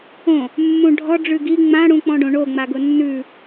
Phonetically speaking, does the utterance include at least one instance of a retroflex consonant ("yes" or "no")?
yes